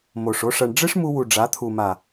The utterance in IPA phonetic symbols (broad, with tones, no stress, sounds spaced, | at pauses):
m o˨ ʂ o˦ ʂ ɐ˧ ɳ ɖ͡ʐ ɨ˦ ʂ m u˧ w u˨ ɖ͡ʐ a˨˦ t̪ʰ u˨ m a˨